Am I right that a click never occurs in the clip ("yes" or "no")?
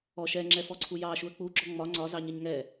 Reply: no